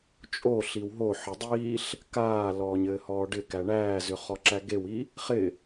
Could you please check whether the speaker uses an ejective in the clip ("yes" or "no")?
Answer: yes